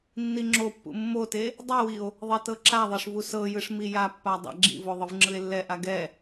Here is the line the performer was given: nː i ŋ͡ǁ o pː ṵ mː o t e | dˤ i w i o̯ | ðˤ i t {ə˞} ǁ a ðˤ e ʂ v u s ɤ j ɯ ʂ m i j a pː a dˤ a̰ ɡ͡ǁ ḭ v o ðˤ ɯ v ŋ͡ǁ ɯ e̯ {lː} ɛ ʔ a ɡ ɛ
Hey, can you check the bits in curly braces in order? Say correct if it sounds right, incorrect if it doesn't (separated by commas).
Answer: incorrect, correct